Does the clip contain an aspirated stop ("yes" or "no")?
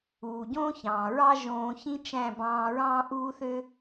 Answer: no